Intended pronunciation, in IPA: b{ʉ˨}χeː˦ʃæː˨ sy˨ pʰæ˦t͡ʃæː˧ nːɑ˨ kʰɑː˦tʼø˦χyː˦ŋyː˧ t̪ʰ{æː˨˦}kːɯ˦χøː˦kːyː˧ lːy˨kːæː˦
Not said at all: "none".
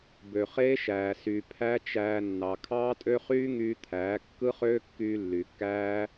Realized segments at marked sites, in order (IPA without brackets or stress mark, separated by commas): ø˨, æː˨˦